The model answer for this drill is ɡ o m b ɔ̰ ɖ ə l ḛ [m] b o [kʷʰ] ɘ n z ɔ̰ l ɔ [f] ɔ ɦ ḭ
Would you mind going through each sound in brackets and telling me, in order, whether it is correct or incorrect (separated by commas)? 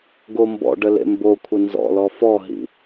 correct, correct, correct